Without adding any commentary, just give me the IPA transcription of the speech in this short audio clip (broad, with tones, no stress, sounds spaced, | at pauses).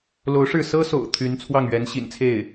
l o˧˥ ʊ̯ ʂ ɻ̩˥˩ s ɤ˥ s o̰˨˩ ʊ̯ t̪ʰ y˧˥ n t͡sʰ w ɑ˥˩ ŋ ɥ ɛ˧˥ n ɕ ḭ˨˩ n t͡sʰ e˥˩ ɪ̯